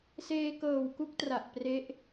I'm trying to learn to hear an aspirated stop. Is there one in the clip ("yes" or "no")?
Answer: no